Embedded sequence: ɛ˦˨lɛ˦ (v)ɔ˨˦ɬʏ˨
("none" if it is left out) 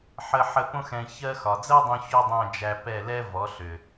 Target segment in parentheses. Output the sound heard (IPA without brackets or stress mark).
v